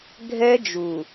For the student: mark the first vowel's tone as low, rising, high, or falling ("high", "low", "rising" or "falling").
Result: high